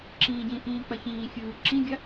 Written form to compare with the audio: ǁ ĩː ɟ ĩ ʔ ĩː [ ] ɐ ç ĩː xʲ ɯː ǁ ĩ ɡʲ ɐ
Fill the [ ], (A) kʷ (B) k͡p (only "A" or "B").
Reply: B